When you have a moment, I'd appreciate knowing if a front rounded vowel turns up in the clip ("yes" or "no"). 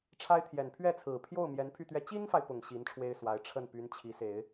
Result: yes